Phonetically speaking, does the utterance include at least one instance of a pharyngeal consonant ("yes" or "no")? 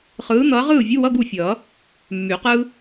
no